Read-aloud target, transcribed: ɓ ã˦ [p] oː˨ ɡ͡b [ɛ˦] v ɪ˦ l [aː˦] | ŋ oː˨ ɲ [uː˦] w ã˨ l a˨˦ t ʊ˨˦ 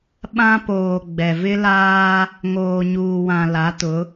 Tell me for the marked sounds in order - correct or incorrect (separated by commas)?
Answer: correct, incorrect, correct, incorrect